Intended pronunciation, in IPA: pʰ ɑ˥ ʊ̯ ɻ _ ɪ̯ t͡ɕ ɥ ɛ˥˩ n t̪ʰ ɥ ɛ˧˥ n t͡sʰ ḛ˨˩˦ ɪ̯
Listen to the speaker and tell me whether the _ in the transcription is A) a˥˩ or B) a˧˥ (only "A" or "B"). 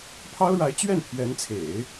B